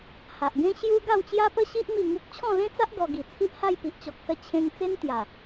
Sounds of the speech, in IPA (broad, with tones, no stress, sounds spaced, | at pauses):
h a˨ ʔ ɡ ẽ˦ ɕ j u˦ ɡ a˥˧ w t͡ɕ j a˦ p ə˦ ɕ i˦ ʔ m i˥˧ ŋ u˦ k̚ t͡ɕʰ ɔ̃˥˧ l ẽ˦ t͡s a˦ ʔ ɡ ɔ˧ ɡ i˨˩ t͡sʰ i˦ ʔ h a˥˧ j p i˨ ʔ t͡ɕ ɔ˨ k̚ s ə˧ t͡ɕʰ ẽ˧ ŋ t͡s e˦ n t̪ j a˨˩